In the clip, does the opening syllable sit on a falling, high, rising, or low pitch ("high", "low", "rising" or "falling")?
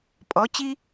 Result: rising